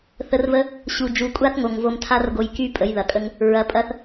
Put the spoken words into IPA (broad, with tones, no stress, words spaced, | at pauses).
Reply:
θə˧rvə˦ | ɕu˨d͡ʒu˨kʷʼa˦θŋo˨ŋ vo˧mtʰa˦rɡo˧j ky˦ pʼə˨˦jðɐ˨kʼə˦ŋ | ɹɐ˧pʼɐ˦θ